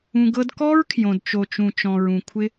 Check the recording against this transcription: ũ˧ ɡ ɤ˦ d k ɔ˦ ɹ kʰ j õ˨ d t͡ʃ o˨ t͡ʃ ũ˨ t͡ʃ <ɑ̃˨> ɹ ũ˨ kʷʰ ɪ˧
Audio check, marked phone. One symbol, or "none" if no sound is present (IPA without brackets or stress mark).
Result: ɔ̃˨